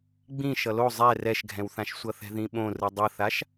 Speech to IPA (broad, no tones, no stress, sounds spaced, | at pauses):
ɡ͡b ĩ ʃ ʌ l o zˤ ɛ r ɛ ʃ ɡʱ ɛ̃ w θ ã ʃ sʷ ʌ θ ɛ̤ ð ĩ ɓ õ r ɯ dˤ ʌ θ a ʃ